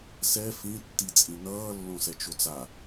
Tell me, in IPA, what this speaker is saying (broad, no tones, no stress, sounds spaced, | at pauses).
s ɛ f ĩ tː i t͡sʼ ĩ n ʌː lː õ s ɛ t͡ʃ o t͡s a